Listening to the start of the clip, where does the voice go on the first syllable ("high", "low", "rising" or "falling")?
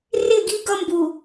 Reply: falling